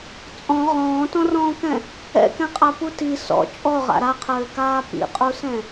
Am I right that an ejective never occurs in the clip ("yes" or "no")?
no